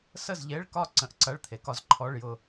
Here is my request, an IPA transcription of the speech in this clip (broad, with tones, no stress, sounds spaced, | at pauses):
s ə˥˨ z ʎ e˧˥˧ ɭ k ɒ˥˨ ǀ ə̃˧˥˧ ʔ ǀ ɐ˧˥˧ ɭ t̪ʰ e˩˧ k ɒ˧ z ǃʰ ɔ˧˥˧ ɭ j ʊ˥˨